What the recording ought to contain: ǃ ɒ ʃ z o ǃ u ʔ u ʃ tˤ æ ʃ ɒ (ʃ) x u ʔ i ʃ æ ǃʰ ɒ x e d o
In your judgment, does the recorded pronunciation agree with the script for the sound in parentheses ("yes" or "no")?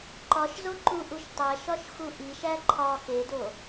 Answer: yes